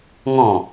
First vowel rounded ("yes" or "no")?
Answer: yes